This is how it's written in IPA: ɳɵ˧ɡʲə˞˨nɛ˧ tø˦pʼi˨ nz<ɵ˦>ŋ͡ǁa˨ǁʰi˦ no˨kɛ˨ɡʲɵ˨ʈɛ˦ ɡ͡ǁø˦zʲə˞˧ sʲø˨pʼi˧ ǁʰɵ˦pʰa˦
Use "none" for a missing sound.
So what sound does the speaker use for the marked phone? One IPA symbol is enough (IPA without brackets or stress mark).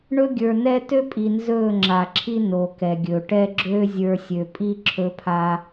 ɵ˦˨